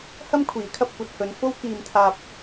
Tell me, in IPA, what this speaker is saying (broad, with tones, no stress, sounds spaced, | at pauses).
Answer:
h ɐ˥ m kʷʰ iː˨˥ kʰ ɐ˧ p̚ kʷ ɐ˧ t̚ h ɵ˨˧ n f o˥ w k iː˧ m t̪ʰ aː˧ p̚